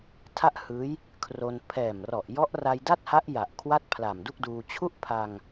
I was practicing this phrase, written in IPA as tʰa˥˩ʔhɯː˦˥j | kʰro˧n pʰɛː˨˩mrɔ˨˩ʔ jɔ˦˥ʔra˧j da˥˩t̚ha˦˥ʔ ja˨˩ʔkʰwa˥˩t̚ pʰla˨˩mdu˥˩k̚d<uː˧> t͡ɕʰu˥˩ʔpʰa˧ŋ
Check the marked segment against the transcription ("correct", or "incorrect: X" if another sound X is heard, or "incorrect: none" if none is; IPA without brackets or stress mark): correct